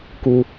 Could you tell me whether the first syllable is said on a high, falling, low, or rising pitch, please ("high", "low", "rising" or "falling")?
high